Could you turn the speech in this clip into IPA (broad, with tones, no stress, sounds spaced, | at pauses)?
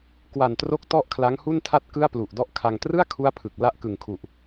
k w a˨˩ n t r o˦˥ k̚ t ɔ˥˩ ʔ kʰ l a˦˥ ŋ h u˥˩ n tʰ a˥˩ t̚ k ɯ˥˩ a̯ p l u˨˩ ʔ d ɔ˥˩ ʔ kʰ a˧ ŋ t r ɯ˥˩ a̯ kʰ u˥˩ a̯ pʰ ɯ˨˩ k̚ l a˥˩ ʔ k ɯ˨˩ ŋ kʰ u˨˩ ʔ